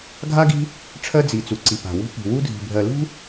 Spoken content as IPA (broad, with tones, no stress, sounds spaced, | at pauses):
ɡʱ a˦ ɡ i̤˦ | ʈ͡ʂʰ ɜ˦ d͡z i˨ t͡s u˨ ǀ i˨ p a̤˨ w ṳ˦ p i̤˨ w u˦ dʱ i̤˨ bʱ ɜ˨ l ṳ˦